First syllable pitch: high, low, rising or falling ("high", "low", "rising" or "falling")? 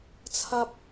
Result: high